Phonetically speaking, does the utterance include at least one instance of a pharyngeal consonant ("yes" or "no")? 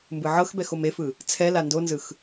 yes